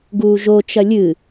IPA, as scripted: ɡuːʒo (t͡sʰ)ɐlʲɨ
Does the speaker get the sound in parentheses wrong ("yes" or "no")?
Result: yes